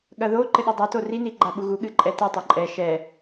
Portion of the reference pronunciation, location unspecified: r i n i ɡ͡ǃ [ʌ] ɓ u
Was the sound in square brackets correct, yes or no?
no